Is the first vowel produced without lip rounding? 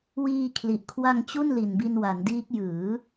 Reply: yes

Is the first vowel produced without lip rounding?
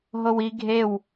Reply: no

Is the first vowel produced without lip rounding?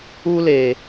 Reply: no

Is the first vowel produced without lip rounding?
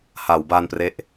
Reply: yes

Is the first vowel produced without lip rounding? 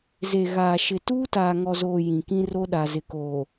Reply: yes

